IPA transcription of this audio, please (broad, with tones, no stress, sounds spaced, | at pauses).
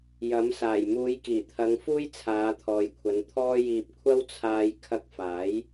j ɐ˨˥ m s aː˨˩ j m uː˨˧ j k iː˨˩ t̪ʰ ɐ˨˧ ŋ f uː˧ j t͡sʰ aː˨˧ t̪ʰ ɔː˨ j kʷʰ ɐ˨˧ n t̪ʰ ɔː˥ j iː˧ p̚ kʷʰ ɐ˥ w t͡sʰ aː˧ j kʰ ɐ˧ k̚ f aː˨˥ j